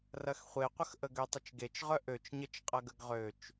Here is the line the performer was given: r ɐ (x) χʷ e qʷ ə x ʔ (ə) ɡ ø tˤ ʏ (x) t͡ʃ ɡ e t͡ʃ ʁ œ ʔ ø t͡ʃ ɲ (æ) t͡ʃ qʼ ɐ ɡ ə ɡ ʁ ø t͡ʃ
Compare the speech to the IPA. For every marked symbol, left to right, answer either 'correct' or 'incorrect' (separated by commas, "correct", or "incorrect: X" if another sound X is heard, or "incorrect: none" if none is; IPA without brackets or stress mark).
correct, correct, incorrect: none, incorrect: ə